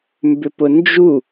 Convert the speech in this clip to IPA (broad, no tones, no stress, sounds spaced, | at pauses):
m b ʏ p ʊ n d͡ʒ u